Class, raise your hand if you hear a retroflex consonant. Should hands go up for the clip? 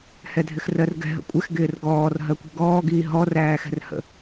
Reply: no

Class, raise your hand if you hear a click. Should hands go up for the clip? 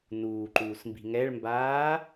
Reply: yes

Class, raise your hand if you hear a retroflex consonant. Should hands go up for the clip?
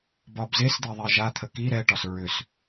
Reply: yes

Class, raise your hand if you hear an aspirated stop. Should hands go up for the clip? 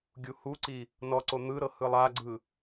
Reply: no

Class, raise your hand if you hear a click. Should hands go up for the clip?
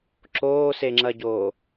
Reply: yes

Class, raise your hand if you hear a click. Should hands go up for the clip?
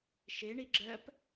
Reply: yes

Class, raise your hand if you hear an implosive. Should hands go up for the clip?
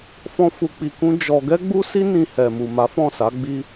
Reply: no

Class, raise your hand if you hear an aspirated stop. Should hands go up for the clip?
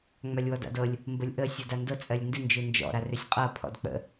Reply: yes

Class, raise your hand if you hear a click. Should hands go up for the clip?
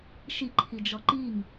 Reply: yes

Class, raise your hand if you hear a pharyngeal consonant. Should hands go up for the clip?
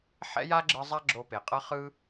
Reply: yes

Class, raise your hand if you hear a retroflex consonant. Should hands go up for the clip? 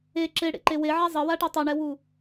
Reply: yes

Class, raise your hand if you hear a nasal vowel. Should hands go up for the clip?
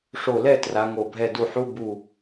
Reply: no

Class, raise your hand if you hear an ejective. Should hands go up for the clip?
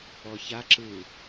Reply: no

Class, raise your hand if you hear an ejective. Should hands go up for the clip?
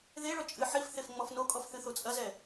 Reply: yes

